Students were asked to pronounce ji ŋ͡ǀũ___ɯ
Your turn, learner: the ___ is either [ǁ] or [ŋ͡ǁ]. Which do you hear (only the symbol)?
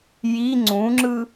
ŋ͡ǁ